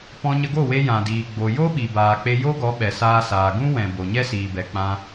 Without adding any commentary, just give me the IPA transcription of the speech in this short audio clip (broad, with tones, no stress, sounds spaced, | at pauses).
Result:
p ɔ̃˧ ɲ ə˧ ɡ o˦˨ w e˧ j ã˨ d iː˨ ɡ͡b o˨ j o˦ ɓ i˨ b aː˨ k͡p e˧ j o˦ ɡ ɔ˨˦ ɓ ɛ˨ s aː˧ s aː˨ ɡ ũ˦ w ɛ̃˨ b o˨ ɲ ɛ˦ s iː˨ b ɛ˨ k͡p ã˧